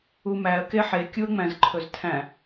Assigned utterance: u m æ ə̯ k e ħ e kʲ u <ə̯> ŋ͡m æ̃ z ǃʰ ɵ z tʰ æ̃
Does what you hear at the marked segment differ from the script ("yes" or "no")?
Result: no